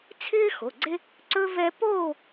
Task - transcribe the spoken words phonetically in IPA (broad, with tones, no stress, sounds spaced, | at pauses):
t͡sʰ ɪː˥ x o˩˧˩ ɡ͡ǀ e˥ | ǀ ɵ˥ v ɛ˥ p oː˥˧